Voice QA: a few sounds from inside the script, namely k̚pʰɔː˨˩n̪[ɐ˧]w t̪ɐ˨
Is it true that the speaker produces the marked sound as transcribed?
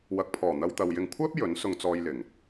yes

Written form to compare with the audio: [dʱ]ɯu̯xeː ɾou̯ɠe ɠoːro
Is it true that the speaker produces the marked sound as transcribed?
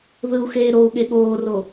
no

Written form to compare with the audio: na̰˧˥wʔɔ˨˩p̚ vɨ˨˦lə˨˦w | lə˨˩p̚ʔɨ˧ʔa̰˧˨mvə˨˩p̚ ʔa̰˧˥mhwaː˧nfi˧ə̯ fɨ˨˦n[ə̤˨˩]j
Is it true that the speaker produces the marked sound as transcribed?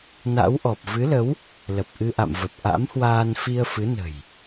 yes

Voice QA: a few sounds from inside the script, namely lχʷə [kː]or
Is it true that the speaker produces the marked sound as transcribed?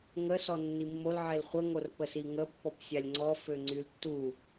no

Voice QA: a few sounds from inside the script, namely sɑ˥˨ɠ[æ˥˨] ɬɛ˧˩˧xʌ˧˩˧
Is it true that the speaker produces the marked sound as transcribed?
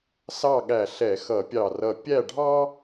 no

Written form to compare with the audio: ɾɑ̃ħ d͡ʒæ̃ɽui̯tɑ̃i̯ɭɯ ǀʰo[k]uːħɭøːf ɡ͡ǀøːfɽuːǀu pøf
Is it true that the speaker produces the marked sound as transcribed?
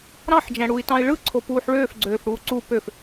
no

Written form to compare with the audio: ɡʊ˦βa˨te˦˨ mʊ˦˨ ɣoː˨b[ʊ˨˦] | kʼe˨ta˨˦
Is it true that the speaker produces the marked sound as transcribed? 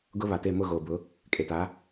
yes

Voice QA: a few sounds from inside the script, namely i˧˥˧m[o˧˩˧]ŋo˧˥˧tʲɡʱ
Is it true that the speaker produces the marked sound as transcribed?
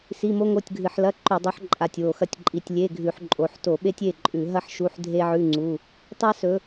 no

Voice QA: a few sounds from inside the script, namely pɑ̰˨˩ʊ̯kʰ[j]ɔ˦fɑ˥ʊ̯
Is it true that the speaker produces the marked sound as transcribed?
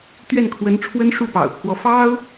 no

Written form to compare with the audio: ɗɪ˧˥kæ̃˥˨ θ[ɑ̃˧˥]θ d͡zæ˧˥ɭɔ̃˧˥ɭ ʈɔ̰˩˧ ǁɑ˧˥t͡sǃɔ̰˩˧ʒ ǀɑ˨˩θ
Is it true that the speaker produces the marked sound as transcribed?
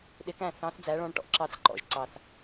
yes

